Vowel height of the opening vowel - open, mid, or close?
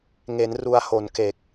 mid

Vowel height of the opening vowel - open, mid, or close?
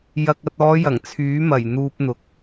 open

